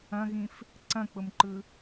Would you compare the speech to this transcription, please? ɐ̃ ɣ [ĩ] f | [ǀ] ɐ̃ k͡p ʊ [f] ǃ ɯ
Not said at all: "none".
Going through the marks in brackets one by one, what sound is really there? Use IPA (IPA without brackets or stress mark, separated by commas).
ĩ, ǀ, m